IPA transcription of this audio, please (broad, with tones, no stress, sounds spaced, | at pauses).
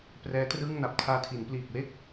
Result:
p r ɛː˦˥ t r ɯː˥˩ ŋ n a˨˩ p̚ tʰ aː˧ tʰ i˩˦ n p l iː˨˩ k̚ w e˥˩ k̚